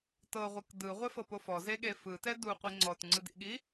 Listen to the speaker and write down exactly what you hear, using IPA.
t ɤ ʁʷ ɯ k d ɯ ʁʷ ɛ f ɤ p o f ɔ z e ɠ e f ɯ t ɛ d u qʷ i ŋ͡ǀ ɔ t ŋ͡ǀ ɯ d ḭ ɠ i

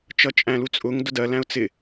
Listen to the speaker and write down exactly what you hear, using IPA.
t͡ʃ ʌ t͡ʃʼ æ̃ l u t͡sʼ ʊ ŋ d ʊ d ɜ l æ̃ ʊ̯ t͡s ɪ

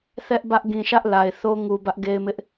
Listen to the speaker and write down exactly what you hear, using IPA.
θ ɛ˦ ʔ b ä˦ ʔ ɡ ĩ˨ ʃ ä˦ ʔ l a˨ ɪ̯ θ o˦ ŋ u˨ b ä˦ ʔ ɡ e˦ ɪ̯ m ɪ˦ ʔ

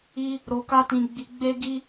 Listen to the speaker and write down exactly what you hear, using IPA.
i˦ | ɾ o˧ k a˦ t ĩ˧ ɡ͡b i˧ ɡ͡b e˦ ɡ i˦

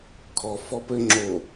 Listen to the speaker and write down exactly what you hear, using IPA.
kʰ ɔ f ɔ p ɘ ŋ͡ǁ o

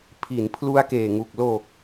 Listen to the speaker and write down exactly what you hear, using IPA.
pʰ i˩˦ n pʰ l u˦˥ a̯ k eː˨˩ ŋ u˨˩ k̚ l o˨˩ k̚

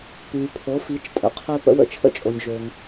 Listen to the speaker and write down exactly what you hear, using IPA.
p yː˩ pʰ o˩˧ f i˩˧ t͡ʃ tʼ ə̰˩˧ qʰ ø˧ p ə̰˧ w ə̰˧˥ t͡ʃʰ ə̰˥ t͡ʃʼ o˩ nʲ ʒ ø˩ ŋ

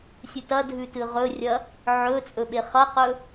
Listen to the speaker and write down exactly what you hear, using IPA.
sʲ ɨ t ɐ dʱ ʉ t ɨ ʁ ɵ rʲ ɐ | ʕ ɵ t͡sʼ ɵ ɓ e χ ɐ q ɵ

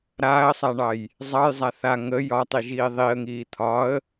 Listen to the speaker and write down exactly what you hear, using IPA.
ɾ aː ə̯ sˤ a ɳ ɑ j | zˤ ɑ j zˤ a θ a ŋ ə j ɒ tˤ i ʒ iː ðˤ i ə̯ ŋ iː t̪ʰ ɒ ə̯

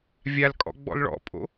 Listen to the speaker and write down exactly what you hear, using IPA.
vʲ a l kʼ ɔ̰ ɡ͡b ɔ̰ l ɭ ɔ̰ pʼ o̰

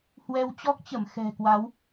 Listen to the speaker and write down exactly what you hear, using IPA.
h w ɛ˧ w t͡ɕ ɔ˦˥ k̚ t͡ɕ ə˧˩ m x ɛ̤˨˩ k w a˨˦ w

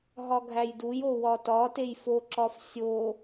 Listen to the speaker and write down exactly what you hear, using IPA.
ɦ ɒ ɡʱ æ j d u j o w ɒ t ɒ t e j f o ǁ ɒ f sʲ o

